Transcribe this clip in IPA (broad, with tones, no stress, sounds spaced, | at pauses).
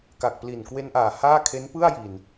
k a˨˩ k̚ p l i˨˩ n k w e˧ n ʔ aː˨˩ h aː˥˩ kʰ e˦˥ n p ɯ˥˩ a̯ j i˨˩ n